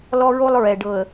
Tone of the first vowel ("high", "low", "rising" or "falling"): high